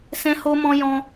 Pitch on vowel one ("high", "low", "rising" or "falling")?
high